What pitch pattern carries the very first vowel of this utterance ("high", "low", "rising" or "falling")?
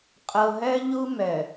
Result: low